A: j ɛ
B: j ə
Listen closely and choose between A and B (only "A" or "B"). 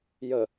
B